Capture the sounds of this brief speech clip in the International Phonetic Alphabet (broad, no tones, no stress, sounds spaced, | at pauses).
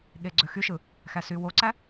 ɠ e ɡ͡ǀ ø x y ʃ ɯ | x æ s y w o ǀ æ